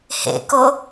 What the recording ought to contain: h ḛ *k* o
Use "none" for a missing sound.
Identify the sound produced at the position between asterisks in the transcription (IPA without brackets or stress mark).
k